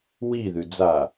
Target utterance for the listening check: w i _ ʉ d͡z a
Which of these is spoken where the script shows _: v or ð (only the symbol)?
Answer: ð